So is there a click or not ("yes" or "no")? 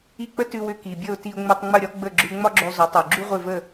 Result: yes